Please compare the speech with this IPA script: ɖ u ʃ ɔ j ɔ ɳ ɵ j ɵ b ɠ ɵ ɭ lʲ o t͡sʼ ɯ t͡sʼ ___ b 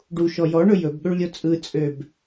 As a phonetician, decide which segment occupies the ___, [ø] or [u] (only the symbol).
ø